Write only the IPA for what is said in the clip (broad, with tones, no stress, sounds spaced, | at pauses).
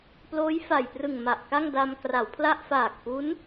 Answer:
p l oː˦˥ j f a˨˩ j p r ɯ˨˩ ŋ m a˨˩ ʔ k a˥˩ ŋ d a˧ m k r a˩˦ w pʰ l a˥˩ ʔ f aː˨˩ k̚ p u˦˥ n